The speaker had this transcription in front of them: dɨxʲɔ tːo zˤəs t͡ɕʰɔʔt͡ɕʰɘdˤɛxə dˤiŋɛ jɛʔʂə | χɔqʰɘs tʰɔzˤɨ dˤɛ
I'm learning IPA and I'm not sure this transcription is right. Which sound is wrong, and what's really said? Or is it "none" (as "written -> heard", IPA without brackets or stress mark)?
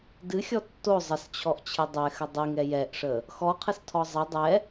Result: χ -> x